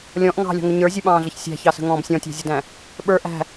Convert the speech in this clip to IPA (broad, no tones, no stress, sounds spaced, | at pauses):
lʲ ɔ̃ ʔ ŋ ɑ̤ lʲ ɔ̤ ŋ ʊ ɲ ə˞ zʲ u ɓ ɑ̃ː ɮ ə ç sʲ æ̤ ç ɑ s ə̤ ŋ ɔ̃ː b sʲ ɔ̃ tʲ ɑ̤ zʲ ə d æ̃ | ɓ ə˞ ʔ æ̤